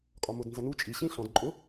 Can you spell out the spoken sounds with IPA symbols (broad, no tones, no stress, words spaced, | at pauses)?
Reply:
kʼɒmʊdnzʌnu t͡ʃʼi ɕĩɬɔ̃d ǃʼʊ